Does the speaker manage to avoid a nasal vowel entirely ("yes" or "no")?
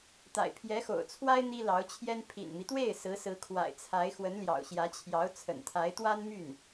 yes